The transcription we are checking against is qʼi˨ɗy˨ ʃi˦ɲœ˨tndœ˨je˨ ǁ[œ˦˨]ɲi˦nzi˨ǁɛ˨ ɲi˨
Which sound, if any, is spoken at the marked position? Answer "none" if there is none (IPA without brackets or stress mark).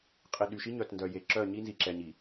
œ˦˨